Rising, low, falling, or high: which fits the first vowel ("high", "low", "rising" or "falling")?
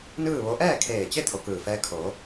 falling